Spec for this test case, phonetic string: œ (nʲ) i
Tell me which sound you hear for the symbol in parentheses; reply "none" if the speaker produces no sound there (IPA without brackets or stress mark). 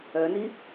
n